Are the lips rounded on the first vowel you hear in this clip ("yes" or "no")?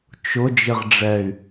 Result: yes